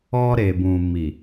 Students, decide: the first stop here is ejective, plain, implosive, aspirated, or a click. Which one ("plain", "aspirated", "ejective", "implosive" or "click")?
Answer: plain